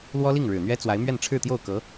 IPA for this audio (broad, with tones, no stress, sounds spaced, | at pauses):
l w ɔ˥ l i˥˩ ŋ ɻ ɻ̩˨˩ n̪ ɥ ɛ˥ t͡s w a˧˥ ɪ̯ m ɥ ɛ˥˧ n ʈ͡ʂʰ ɻ̩˥˧ t̪ j o˥˩ ʊ̯ k ɤ˧˥